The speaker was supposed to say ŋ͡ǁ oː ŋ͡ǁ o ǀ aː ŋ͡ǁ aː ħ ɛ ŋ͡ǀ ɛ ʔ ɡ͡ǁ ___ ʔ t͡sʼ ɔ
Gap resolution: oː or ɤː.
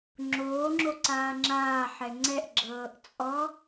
ɤː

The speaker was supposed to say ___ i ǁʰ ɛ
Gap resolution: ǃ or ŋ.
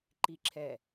ǃ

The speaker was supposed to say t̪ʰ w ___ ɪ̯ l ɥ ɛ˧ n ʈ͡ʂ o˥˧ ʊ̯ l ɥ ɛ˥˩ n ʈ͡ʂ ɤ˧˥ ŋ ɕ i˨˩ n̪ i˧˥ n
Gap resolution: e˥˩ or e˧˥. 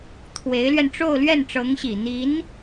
e˧˥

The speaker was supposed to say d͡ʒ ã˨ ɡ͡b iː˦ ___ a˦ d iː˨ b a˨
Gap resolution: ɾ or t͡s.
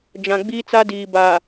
t͡s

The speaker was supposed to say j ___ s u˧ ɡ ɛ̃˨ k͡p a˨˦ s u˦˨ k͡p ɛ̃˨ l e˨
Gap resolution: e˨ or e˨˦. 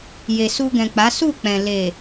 e˨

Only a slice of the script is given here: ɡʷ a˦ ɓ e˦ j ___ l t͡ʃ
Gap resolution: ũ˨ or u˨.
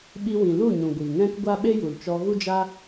u˨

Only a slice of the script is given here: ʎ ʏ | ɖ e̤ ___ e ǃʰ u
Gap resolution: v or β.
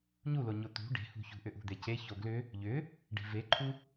v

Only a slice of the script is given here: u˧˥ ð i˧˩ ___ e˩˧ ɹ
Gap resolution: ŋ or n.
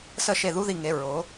ŋ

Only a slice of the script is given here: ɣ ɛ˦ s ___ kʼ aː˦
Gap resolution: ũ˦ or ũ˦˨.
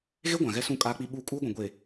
ũ˦˨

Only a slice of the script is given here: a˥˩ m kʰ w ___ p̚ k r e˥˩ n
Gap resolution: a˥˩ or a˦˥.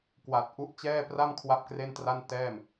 a˦˥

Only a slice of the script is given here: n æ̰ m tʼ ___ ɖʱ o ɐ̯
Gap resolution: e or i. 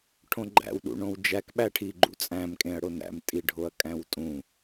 i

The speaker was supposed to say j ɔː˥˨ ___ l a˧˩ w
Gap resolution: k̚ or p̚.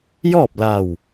p̚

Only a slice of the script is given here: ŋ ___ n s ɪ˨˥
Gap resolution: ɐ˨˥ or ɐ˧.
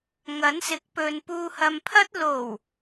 ɐ˨˥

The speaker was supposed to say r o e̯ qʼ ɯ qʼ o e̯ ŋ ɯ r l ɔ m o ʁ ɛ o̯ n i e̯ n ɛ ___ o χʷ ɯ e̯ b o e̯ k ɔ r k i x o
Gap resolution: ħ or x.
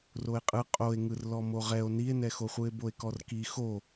x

